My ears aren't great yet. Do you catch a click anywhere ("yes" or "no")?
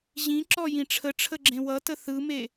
yes